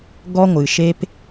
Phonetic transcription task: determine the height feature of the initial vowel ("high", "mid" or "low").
mid